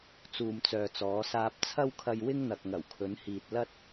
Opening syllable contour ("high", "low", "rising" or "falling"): low